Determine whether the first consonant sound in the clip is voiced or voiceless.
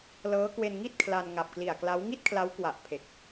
voiced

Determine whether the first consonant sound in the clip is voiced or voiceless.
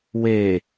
voiced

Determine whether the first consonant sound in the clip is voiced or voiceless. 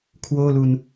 voiceless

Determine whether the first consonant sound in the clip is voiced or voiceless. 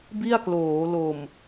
voiced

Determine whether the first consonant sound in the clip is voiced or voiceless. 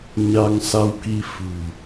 voiced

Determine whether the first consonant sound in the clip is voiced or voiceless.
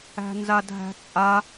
voiced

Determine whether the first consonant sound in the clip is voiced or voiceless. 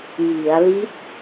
voiced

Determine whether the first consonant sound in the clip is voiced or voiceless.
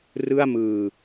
voiced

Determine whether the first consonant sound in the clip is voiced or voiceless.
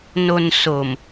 voiced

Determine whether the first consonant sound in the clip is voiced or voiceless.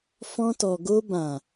voiceless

